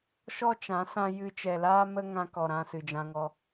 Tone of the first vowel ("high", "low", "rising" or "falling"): high